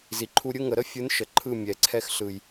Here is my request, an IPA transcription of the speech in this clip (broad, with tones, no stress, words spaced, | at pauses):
zi˨ǃʰu˧ɾʲɯ˦ ŋə˨ɾə˦fʲɯ˨˦n ʃə˨ǃʰɯ˦˨ mʲɛ˨ǀʰɛ˧xɬɯ˨j